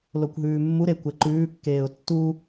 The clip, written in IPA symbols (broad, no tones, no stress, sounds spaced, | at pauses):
l o kʷ ɦ ʉː mː u ɾ e kʷ ɛ ǃ ʉː kː eː ʊ̯ tː u